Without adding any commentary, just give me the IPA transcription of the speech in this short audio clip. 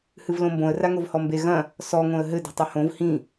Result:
h ɨ v l õ m b õ ə̯ r a ŋ o v h ɔ m b e ɣ ɐ̃ | s ɔ ŋ õ ə̯ ɦ ɘ d i̤ tˤ ɘ h õ v h ĩ

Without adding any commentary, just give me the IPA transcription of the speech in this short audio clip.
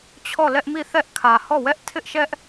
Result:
t͡ɕʰ ɔ˦˨ l ɛ˦ ʔ m i˦˨ θ ɛ˦ ʔ kʰ ä˨ h ɔ˦˨ w ɛ˦ ʔ tʰ ɪ˦ ʔ ʃ ɛ˦ ʔ

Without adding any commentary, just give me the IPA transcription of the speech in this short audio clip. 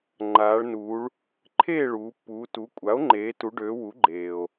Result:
ŋ͡ǃ aː˩˧ ɭ n uː˩˧ ɭ | ǃʰ eː˥˨ ɭ uː˩˧ pː uː˩˧ t u˩˥ kʷʼ a˩˥ o̯ ŋ͡ǃ eː˩˧ t u˩˧ ɖ øː˩˧ w u˩˥ ɡ͡ǃ eː˩ o̯

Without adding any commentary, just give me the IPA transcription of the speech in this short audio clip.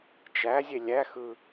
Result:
t͡ʃ æ zʲ e lʲ æ x ɯ

